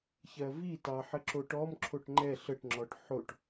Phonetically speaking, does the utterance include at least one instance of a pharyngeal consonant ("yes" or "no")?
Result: yes